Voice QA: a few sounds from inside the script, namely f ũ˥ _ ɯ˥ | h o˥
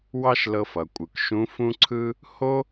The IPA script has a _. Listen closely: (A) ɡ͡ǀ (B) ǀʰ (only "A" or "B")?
B